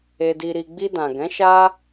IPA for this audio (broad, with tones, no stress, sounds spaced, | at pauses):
e˧ d i˧ ɾ i˧ ɡ͡b i˧ d ã˨ ɡ ɛ̃˨˦ ʃ a˦